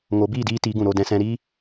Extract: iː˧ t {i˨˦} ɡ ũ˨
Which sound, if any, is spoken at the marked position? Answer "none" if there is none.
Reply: i˨˦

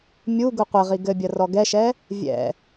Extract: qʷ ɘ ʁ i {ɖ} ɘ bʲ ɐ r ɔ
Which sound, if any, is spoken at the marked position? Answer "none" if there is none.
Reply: ɡ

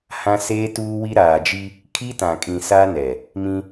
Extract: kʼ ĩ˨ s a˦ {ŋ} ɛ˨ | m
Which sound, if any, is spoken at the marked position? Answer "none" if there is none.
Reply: n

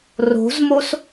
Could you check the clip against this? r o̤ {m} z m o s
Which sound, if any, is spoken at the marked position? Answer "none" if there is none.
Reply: none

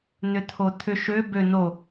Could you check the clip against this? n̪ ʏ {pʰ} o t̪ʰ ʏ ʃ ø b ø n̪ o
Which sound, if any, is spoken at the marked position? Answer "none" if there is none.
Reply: t̪ʰ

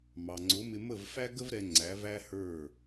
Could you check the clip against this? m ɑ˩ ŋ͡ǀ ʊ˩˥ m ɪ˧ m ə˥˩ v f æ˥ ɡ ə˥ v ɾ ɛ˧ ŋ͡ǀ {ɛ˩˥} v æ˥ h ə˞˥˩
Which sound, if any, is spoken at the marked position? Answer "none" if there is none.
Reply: æ˩˥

